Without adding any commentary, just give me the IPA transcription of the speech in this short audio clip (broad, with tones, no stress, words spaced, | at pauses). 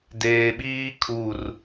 deː˨ɓiː˦ kʰu˦˨r